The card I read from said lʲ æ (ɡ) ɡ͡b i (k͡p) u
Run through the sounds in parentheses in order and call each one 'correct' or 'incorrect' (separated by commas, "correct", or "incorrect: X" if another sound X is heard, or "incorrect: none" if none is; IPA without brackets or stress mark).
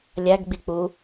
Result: correct, correct